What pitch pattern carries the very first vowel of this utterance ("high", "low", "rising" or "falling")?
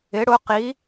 rising